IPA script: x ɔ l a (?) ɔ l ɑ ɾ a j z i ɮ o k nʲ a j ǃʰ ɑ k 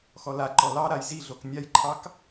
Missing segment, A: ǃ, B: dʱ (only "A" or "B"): A